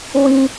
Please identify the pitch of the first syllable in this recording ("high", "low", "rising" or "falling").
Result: low